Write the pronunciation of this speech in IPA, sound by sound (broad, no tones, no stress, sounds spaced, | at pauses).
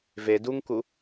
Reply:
v e d u ŋ k u